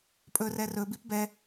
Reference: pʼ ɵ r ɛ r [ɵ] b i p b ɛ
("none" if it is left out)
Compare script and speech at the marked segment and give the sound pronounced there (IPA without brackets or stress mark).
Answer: ɵ